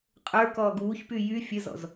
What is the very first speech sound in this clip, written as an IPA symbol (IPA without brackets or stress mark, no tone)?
qʼ